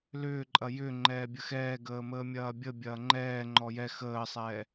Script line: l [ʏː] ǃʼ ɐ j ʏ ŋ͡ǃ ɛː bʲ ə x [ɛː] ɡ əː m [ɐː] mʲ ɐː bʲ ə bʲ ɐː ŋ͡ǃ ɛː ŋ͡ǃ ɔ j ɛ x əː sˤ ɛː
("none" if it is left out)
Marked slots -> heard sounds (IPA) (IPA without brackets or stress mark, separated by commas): ʏː, ɛː, əː